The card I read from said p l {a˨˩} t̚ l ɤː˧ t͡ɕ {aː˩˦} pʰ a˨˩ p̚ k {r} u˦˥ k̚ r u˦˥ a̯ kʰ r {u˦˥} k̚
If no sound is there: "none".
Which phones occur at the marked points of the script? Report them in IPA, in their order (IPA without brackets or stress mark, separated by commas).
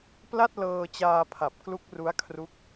a˥˩, aː˧, l, u˦˥